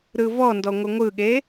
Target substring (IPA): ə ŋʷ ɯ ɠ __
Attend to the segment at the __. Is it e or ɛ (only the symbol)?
e